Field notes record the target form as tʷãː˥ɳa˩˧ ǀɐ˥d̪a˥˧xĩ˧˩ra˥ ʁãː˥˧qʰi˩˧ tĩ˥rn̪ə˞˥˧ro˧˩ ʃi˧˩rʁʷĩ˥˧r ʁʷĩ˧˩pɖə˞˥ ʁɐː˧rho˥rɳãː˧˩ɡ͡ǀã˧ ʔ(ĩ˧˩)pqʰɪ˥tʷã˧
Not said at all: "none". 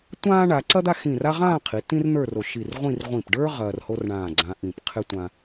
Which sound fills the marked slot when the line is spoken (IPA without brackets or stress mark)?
ĩ˧˩